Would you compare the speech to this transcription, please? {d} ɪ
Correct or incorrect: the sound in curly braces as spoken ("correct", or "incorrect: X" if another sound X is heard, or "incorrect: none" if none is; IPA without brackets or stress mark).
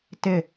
incorrect: t